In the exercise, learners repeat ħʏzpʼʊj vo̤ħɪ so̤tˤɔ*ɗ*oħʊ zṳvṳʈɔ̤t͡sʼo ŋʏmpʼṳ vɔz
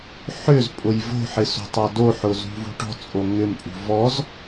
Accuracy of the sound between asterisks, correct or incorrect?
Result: incorrect